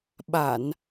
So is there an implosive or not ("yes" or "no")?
yes